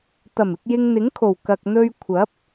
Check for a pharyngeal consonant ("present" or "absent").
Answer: absent